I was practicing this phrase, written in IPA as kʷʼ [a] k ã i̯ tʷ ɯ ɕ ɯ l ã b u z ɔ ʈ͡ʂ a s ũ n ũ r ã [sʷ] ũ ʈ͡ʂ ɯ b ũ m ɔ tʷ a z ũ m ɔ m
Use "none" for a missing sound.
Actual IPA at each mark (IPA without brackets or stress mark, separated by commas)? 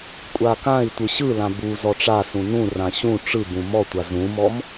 a, ɕ